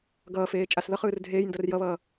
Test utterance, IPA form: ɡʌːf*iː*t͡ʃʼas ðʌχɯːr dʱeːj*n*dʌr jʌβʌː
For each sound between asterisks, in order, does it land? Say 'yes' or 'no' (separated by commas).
no, yes